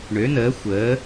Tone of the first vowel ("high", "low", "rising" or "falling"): rising